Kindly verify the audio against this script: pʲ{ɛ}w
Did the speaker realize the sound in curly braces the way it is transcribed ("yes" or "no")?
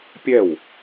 yes